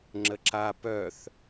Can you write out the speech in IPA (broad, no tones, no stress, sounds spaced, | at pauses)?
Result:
ŋ͡ǁ ə ǁ a p œ θ